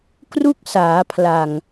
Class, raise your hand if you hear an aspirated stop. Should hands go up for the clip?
yes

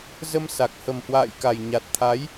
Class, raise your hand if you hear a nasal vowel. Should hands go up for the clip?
no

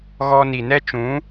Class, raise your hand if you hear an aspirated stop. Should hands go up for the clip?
no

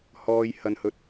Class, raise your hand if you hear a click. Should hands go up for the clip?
no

